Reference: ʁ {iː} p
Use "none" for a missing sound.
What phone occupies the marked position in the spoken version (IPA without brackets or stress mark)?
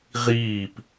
iː